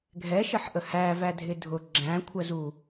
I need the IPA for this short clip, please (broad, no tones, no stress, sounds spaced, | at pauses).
ɡʱ ɛ ʃ ə ħ ʔ ə h æ v æ dʱ ɪ dʱ ʊ ɡ͡ǁ æ̃ kʷʰ ə z u